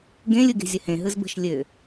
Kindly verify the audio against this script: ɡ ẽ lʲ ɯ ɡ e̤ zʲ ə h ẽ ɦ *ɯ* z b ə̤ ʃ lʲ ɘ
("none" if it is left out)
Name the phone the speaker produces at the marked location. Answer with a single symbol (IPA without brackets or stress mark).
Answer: ɯ